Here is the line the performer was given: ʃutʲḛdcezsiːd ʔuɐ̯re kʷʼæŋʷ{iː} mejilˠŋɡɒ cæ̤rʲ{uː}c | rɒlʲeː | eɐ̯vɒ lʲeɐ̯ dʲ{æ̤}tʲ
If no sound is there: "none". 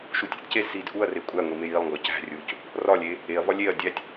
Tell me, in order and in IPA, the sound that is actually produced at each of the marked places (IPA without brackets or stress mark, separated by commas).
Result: i, uː, æ